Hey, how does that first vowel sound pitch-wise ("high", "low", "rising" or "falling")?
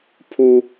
low